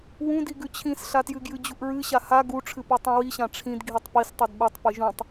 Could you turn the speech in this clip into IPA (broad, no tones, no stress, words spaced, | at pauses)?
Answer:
wũdiɡʉ t͡ɕʰĩsɬatjɨɡjɨ d͡ʑuʔɹɨɕa ha ɡuʈ͡ʂʰɨpʉ tˤũwiɕã ʈ͡ʂʰĩd ɡʱitˤpis tˤudɓutˤ pɨʒũtˤ